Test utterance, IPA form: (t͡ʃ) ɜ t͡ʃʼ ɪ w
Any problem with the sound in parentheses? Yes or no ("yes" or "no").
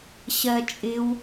yes